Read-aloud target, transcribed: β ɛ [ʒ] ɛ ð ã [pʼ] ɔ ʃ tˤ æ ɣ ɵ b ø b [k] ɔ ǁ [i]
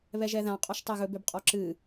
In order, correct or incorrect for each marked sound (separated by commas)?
correct, incorrect, incorrect, incorrect